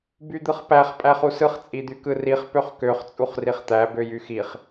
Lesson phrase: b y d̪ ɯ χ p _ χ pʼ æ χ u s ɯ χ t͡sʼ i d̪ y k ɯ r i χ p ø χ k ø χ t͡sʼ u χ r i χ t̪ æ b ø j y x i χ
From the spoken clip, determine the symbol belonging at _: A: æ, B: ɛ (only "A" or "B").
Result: A